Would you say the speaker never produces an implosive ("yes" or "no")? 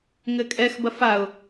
yes